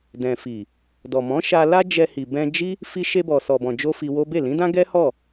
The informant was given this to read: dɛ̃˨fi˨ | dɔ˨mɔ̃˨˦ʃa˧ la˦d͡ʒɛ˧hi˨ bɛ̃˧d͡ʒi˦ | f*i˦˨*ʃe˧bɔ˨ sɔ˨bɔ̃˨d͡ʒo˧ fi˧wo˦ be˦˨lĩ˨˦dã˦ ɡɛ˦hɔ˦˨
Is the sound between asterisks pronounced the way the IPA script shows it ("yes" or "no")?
no